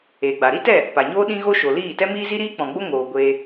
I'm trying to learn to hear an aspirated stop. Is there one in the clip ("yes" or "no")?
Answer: no